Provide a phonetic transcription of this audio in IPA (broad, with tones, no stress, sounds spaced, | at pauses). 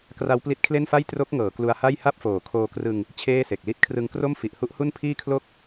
k r a˦˥ w p l i˦˥ t̚ kʰ l e˥˩ n f a˥˩ j t r o˦˥ k̚ ŋ ɤː˩˦ k l u˧ a̯ h a˥˩ j h a˥˩ p̚ f oː˩˦ kʰ oː˧ k r ɯ˧ ŋ | t͡ɕʰ eː˥˩ s e˨˩ k̚ l i˥˩ t̚ kʰ r ɯ˧ ŋ k r o˥˩ m f i˨˩ ʔ h u˦˥ ʔ h u˥˩ n pʰ iː˥˩ kʰ l o˥˩ k̚